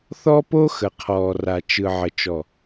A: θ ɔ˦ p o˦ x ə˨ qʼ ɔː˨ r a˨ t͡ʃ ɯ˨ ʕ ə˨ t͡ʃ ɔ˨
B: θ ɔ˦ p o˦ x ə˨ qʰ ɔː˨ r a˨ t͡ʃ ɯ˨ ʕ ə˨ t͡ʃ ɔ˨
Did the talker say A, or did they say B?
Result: B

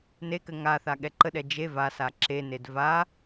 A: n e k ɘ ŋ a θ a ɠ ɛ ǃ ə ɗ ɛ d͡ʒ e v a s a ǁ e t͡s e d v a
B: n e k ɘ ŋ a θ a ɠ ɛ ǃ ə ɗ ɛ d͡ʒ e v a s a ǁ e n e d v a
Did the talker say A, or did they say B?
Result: B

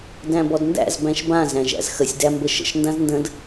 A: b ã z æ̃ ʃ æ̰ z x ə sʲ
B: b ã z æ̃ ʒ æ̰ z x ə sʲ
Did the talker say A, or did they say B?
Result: B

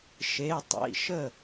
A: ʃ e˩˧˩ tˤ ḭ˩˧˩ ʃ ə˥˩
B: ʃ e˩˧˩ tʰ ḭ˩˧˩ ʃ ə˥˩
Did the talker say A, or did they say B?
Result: A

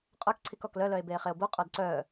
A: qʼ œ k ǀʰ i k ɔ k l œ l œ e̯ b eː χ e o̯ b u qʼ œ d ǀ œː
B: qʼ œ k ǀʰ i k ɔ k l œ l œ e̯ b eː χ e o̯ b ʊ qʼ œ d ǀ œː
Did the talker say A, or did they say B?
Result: A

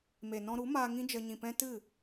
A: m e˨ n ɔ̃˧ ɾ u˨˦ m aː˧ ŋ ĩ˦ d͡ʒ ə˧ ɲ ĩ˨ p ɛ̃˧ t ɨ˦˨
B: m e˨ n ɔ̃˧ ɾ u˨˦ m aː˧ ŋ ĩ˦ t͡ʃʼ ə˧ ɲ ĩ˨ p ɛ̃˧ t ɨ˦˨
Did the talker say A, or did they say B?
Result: A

